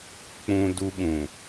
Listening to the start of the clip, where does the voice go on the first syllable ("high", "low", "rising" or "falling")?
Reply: high